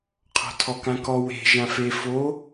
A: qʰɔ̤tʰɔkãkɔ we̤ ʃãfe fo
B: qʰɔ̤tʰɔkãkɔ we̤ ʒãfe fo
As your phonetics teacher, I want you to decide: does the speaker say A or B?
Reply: B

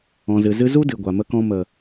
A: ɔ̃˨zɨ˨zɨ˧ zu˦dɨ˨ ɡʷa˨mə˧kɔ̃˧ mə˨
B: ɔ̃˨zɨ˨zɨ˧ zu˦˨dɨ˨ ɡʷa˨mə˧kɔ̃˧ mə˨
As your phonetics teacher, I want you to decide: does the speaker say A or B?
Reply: A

